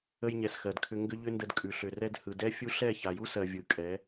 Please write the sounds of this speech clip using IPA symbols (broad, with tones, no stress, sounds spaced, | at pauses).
ə˧ j ɲ ɛ˨ s x ɜ˨ d kʰ ʏ˦ ŋ ɡ ʏ˦ ʎ ʏ˦ n d ə˧ d kʼ ʉ˨ ɬ ʏ˨ r ɛ˧ d h ɯ˨ d ɛ˦ fʲ u˦ ɬ ɛ˦˨ ç a˨ j u˦ s ɜ˨ vʲ ɯ˨ kʼ ɛ˨˦